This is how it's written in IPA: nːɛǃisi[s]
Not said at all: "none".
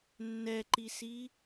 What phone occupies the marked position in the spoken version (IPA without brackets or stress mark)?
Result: none